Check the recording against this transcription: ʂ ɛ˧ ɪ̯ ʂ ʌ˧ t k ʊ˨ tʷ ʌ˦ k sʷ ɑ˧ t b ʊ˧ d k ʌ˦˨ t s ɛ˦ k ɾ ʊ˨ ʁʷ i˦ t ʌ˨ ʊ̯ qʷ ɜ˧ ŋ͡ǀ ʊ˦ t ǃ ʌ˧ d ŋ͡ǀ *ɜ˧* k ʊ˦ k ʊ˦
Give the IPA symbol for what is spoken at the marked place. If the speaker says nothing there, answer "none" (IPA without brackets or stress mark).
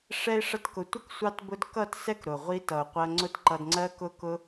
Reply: ɜ˦